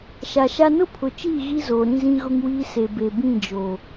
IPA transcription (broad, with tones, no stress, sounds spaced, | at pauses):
ʃ a˨ ʃ a˦ n ʊ˦ pʰ ʊ˨ t͡ʃ iː˦˨ ɣ i˦ z oː˨ ɾ ĩ˦ z ĩ˦ ɣ ʊ˦ ŋ w iː˦ s e˨ b e˨ b ĩ˦˨ d͡ʒ o˨